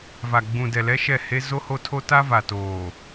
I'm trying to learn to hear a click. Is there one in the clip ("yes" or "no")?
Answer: no